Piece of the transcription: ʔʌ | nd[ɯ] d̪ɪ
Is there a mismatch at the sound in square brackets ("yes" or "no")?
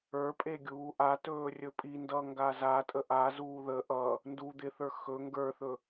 yes